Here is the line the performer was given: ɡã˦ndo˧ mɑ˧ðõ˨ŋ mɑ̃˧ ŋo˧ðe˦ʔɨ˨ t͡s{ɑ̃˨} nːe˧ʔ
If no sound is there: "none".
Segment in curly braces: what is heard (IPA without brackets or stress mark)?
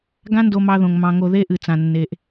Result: ã˨